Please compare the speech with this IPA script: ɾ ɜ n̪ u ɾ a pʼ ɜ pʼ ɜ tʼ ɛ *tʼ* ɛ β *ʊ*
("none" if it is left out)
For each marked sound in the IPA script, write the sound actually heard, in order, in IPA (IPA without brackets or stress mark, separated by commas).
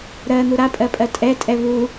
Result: tʼ, u